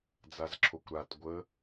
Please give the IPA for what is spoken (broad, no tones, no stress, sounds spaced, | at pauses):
d͡z a z ǁʰ o kʷ ɾ a t ɡʷ ə